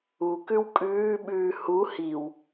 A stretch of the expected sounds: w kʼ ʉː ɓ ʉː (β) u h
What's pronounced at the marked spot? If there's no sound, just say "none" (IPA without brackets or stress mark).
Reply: h